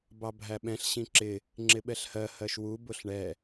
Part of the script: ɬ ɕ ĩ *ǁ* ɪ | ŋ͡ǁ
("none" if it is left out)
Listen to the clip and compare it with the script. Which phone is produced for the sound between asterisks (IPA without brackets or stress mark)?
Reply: ǁ